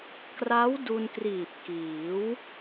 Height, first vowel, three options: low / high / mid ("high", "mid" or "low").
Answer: low